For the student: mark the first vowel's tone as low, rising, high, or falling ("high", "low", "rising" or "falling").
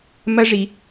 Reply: high